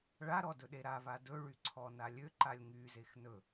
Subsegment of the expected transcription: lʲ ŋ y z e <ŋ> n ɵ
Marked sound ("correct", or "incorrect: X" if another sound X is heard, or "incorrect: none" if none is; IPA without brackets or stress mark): incorrect: x